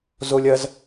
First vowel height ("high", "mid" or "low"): mid